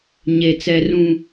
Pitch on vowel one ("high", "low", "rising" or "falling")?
low